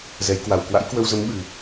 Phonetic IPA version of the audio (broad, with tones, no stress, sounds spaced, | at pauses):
z ɛ˨˦ j k w a˨˩ w k w a̰˧˥ j k w ə˧ w z ə˨˦ m ɓ ɨ˨˩